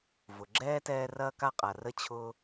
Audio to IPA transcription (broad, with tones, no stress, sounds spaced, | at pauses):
v ʊ˩ ɡ͡ǁ ɛː˥ t ɛː˦ r ɐː˥ k a˥ qʼ a˩ r ə˦ t͡ɕʰ ʊː˥